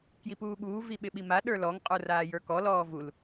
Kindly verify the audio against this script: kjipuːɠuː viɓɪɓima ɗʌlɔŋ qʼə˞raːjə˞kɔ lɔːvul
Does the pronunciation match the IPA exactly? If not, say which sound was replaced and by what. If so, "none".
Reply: ʌ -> ə˞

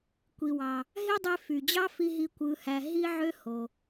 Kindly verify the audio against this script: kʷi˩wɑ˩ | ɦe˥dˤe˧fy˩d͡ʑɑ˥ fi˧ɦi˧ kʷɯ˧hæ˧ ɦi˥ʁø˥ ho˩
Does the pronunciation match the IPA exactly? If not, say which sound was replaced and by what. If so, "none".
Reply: ʁ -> ʕ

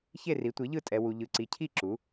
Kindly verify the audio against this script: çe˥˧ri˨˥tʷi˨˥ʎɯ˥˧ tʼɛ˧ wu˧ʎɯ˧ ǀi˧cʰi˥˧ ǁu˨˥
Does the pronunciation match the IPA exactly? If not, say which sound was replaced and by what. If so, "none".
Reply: none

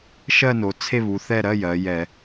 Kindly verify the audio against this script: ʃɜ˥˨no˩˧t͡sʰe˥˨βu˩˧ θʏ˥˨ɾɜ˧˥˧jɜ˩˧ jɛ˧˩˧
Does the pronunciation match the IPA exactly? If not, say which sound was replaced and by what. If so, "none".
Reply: ʏ˥˨ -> ɛ˥˨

